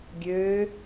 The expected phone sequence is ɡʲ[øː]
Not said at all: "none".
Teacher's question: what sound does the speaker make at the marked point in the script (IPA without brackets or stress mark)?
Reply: øː